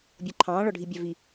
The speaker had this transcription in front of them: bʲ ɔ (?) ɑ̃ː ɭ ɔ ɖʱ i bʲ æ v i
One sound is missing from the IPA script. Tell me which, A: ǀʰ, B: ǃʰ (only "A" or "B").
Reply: B